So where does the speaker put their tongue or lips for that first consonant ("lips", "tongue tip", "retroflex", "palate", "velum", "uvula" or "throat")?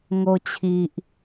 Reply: velum